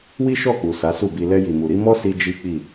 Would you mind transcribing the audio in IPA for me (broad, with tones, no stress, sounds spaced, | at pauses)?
w i˦ ʃ ɔ˦˨ k͡p u˨ s a˨˦ s u˦˨ b i˧ l ɛ˧ j i˨ m u˨ ɾ i˨˦ m ɔ˦ s i˧ d͡ʒ i˦ k͡p i˦˨